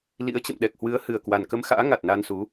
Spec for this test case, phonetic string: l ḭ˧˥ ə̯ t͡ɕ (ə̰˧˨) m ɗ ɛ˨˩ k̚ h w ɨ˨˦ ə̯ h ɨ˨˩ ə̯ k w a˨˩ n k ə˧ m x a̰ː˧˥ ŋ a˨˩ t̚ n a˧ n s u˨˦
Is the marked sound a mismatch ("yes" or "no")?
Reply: no